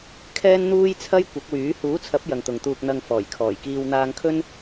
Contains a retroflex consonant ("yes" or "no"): no